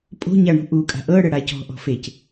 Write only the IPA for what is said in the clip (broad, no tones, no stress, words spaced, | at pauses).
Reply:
pʼo̤ɲa ɳṳʔukʼa̤ ʔɤ ɽəɽacɔ̤ ʔɔ̤fec